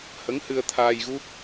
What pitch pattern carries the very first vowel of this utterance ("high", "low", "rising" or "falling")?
rising